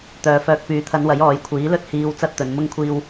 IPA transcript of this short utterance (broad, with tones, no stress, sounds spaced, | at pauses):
t̪ œː˨ f œː˨ k̚ p yː˨˧ t̪ʰ ɐ˨˧ n w ɐ˨˥ j ɔː˨˧ j kʷʰ iː˨˥ l ɵ˥ t̚ h iː˨ w t͡s ɐ˥ t̚ t̪ ɵ˨˧ n m ʊ˥ ŋ kʷʰ iː˥ w